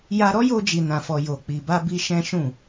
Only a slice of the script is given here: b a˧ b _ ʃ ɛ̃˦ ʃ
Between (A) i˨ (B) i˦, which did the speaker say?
B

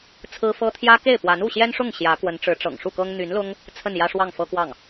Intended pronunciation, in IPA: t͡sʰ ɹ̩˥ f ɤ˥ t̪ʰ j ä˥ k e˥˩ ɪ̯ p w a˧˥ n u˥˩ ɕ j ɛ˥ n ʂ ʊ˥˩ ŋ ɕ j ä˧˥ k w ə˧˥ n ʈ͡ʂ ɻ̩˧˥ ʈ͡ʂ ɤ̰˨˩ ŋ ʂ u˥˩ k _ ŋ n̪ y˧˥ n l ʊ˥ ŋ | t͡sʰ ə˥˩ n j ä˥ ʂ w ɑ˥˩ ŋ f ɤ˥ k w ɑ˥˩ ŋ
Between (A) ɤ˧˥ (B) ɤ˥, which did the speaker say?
B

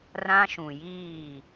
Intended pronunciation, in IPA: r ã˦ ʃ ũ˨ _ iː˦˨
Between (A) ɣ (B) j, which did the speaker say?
B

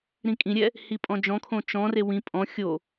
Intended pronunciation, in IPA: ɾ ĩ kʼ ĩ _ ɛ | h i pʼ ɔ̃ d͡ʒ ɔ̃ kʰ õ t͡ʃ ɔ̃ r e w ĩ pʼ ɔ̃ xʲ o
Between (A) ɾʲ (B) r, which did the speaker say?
A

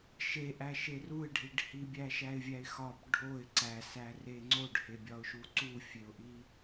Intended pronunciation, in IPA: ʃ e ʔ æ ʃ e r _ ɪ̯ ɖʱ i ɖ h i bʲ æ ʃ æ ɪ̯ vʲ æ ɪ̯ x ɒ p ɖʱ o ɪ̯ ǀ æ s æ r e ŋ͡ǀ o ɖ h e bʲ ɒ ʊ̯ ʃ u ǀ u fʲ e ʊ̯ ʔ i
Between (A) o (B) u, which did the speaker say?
B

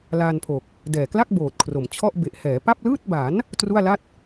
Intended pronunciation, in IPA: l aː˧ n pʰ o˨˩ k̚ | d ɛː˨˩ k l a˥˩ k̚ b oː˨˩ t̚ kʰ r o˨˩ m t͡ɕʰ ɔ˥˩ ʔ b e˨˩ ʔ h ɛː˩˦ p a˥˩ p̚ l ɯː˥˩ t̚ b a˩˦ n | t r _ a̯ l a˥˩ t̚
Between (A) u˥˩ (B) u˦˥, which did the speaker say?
A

